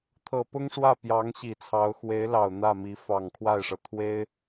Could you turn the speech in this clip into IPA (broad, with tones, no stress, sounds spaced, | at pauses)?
t̪ʰ ɤ˨˩ p ʊ˥ ŋ ʂ w ä˥˩ p j ɑ˧˥ ŋ ɕ i˨˩ t͡sʰ ɑ˧˥ ʊ̯ x w e˧˥ ɪ̯ l ɑ˨˩ ʊ̯ n̪ ä˥˩ m i˧˥ f ɑ˨˩ ŋ kʰ w a˥˩ ɪ̯ ʂ ɤ˩ t̪ʰ w e˥ ɪ̯